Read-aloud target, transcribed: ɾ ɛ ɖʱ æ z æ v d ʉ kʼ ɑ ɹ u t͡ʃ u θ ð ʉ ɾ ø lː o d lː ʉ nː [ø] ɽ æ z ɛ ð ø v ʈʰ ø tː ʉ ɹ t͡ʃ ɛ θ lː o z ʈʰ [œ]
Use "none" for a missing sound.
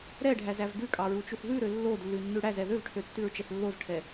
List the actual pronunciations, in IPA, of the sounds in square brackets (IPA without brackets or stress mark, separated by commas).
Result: ʉ, ɛ